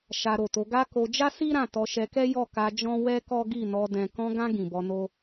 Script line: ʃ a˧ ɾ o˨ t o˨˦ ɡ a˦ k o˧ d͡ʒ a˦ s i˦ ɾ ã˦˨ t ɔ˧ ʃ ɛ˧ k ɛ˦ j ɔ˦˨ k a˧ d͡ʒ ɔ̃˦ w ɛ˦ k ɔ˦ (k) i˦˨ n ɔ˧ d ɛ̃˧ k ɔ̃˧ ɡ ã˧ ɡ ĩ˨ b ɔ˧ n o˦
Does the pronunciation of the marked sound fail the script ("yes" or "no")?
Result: yes